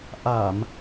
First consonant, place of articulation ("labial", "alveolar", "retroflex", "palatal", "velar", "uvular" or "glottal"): glottal